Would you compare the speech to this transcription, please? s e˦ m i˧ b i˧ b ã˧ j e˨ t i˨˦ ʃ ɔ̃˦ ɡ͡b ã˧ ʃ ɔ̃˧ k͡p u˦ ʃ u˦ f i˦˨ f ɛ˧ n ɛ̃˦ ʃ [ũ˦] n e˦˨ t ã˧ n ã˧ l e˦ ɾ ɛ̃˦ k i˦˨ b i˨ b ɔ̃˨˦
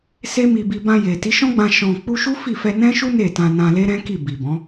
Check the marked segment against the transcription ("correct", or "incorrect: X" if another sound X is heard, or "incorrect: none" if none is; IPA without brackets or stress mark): incorrect: u˦